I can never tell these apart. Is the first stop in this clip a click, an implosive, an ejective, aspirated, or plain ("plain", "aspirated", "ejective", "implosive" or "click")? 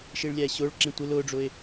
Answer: click